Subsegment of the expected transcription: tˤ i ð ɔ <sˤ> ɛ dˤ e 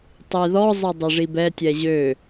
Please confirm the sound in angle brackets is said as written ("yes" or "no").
no